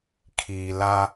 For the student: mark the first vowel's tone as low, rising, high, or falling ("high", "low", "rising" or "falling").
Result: low